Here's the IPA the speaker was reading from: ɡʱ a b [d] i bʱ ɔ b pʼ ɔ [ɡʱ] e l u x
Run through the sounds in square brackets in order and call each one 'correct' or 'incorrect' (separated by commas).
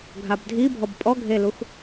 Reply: incorrect, correct